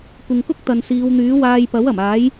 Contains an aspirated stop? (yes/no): no